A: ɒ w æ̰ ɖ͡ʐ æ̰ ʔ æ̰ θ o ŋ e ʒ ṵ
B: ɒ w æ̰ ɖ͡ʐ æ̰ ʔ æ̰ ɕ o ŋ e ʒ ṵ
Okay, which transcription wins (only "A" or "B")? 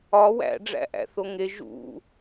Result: A